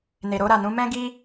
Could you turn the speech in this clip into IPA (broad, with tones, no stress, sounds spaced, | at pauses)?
n e˨ ɾ o˧ ɾ a˨ n ũ˨˦ m ɛ̃˦ ɡ i˦